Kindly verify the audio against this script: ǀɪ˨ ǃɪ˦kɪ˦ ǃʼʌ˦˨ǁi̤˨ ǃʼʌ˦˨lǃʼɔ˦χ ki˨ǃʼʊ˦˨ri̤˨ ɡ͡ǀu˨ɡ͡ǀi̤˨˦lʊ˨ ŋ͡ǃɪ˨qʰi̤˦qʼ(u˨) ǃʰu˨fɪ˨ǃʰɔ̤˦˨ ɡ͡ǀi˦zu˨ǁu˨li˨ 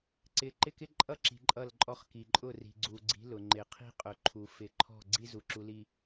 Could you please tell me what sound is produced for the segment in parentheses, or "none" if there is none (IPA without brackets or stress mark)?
ʊ˨